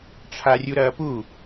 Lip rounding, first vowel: unrounded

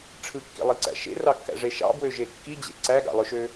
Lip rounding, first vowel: unrounded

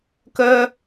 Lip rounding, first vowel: rounded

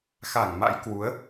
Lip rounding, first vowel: unrounded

